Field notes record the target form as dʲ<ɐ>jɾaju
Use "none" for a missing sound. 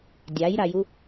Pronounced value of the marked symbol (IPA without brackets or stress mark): a